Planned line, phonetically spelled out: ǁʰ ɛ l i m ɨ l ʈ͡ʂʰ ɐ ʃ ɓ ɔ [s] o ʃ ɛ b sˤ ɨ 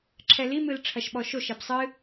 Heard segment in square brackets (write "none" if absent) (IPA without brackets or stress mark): ʃ